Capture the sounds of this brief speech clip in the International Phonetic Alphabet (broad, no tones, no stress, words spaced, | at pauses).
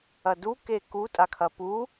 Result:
ɐdu keku tʼakʰɐpu